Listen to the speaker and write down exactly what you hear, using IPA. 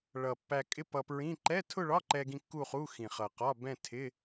ɭ ʌ˨˩ pː æ˧ kʼ ɪ˥˧ p ʌ˧ p ɹ ĩ˧˥˧ ǃ ɛ˧˥˧ tʰ ʊ˥˧ ɭ ɒ˧˥˧ ǃ ɛ˧ ɡ ĩ˧ kː u˥˧ χ u˧˥˧ x ĩ˨˩ χ ʌ˨˩ q ɒ˧˥˧ b ɛ̃˥˧ tʰ ɪ˧˥˧

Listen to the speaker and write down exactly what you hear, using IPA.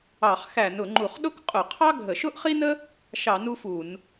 ɑ˧˩˧ χ x æ˧˩˧ n ʊ˧˩˧ ŋ͡ǃ u˧˩˧ χ ɗ ʊ˥ k qʼ ʊ˧˩˧ qʰ ɑ˥ ɡʱ ə˧˩˧ ʃ ʊ˥ ʔ χ i˥ n ə˥ | ʃ ɑ˧˩˧ n u˥ f u˧˩˧ n

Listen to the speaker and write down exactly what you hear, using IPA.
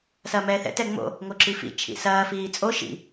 s ɐː m ɛː θ ɛ̰ t ɛ ŋ͡m o̰ | ŋ o ǁ i f ḭ t͡ʃʰ ḭ s ɐː f iː t͡sʼ o ʃ ḭ

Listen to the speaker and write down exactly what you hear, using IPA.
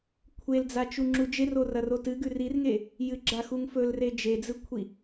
kʷʰ e l d͡z a t͡ʃ u ŋ͡ǁ u d͡ʒ e r o r ɐ r o t ɨ ɡ ʉ r i r ŋ e | j ɨ ɡ͡ǁ a x u ŋ f ɵ l r e d͡ʒ e d͡z ɨ kʷʰ i

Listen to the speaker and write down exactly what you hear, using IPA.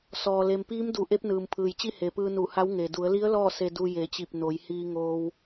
s ɔː˩ l e˩ m p iː˧˥ m d u˩˧ ʔ e˧˥ p̚ n ɯː˩ m pʰ ɯː˩ j t͡ɕ i˥˨ h e˩˧ p ɯː˧ n u˧˩ h a˧˥ w ŋ e˩ d u˩˧ ə̯ l i˧˥ ə̯ l ɔː˥˨ s e˧ d u˧ j e˩˧ t͡ɕ i˧˩ p̚ n o˩˧ j h iː˧ ŋ oː˧ w

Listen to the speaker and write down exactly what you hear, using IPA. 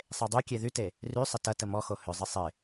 sˤ e dˤ y kʲ e ð y t e | r y sˤ ɪ t ɐ t ə m ɔ x o h ʏ zˤ ɪ sˤ ɪ

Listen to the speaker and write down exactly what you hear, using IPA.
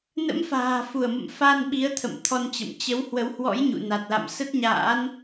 n ə̰˧˥ m f a̤ː˨˩ f u˧˩ ə̯ m ə̰˧˨ m f a˧ n ɓ i˨˦ ə̯ t̪ʰ ə̰˧˨ m t̪ʰ ɔ˧ n t͡ɕ ə̰˧˨ m t͡ɕ ə˨˦ w h w ə˨˦ w h w ɔ̰˧˥ j ɲ ṵ˧˨ n a˨˩ t̚ l a̰˧˨ m s ə˦˥ t̚ ɲ a̰ː˧˥ n

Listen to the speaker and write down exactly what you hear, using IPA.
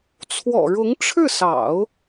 t͡sʰ w ɔ̰˨˩ ɻ ʊ˧˥ ŋ ʈ͡ʂʰ ɻ̩˥˩ s ɑ̰˨˩˦ ʊ̯

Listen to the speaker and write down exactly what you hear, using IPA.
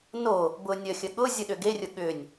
n o | b ʊ nʲ ə xʲ ə ɠ ʊ zʲ ʊ ɗ ʏ ɡ e rʲ ʊ ɠ ʏ nʲ

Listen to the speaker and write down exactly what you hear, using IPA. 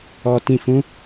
ɔ˨ t ĩ˨ f ũ˨˦

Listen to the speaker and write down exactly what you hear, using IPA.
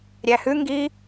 ɾʲ æ h ʉ ŋ ɡ i

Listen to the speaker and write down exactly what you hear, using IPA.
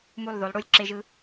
m u˧˩ lˠ ð o˩˧ lˠ ɽ u˧˩ lʲ ǁ e˧ ʒ ɯ˧

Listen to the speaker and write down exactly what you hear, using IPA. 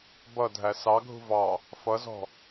b ʌ dʱ æ s ɑ ɡʱ ṳ v ɑ | f ʌ z ɔ̤

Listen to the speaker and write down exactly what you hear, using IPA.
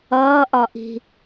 ʌː ʔ ɒ ʔ i̤

